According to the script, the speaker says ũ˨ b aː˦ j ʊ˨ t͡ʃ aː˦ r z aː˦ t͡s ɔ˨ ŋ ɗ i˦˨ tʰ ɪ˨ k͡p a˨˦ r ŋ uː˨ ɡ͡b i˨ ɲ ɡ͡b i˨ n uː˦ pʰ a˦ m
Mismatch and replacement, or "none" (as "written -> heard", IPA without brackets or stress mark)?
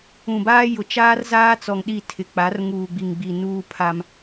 ɲ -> ŋ